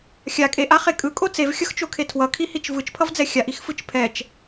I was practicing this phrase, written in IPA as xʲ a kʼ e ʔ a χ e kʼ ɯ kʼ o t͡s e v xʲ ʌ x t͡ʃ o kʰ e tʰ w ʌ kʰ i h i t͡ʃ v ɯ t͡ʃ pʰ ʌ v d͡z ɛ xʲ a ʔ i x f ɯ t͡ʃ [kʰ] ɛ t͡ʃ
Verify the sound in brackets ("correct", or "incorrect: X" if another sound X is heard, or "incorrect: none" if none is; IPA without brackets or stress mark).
incorrect: pʰ